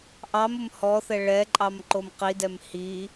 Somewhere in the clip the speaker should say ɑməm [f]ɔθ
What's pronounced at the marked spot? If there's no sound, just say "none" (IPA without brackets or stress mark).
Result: h